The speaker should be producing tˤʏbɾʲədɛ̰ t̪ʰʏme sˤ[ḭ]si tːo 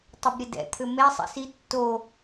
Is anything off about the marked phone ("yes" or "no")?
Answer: no